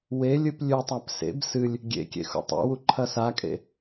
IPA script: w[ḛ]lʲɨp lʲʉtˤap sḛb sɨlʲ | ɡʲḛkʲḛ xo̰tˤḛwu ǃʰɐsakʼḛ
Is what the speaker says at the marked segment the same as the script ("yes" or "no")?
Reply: no